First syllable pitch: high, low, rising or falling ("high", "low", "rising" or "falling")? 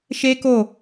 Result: high